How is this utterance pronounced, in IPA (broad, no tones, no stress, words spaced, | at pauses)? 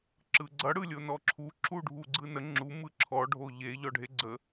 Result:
ǁɯɡ͡ǀʌ ɽɯlʲonɔǁʰu ǁʰuɖʱuɡ͡ǀɯnə ŋ͡ǁu mɯǁʰɔ ɖʱoʎe ʎɔɖʱeɡ͡ǀə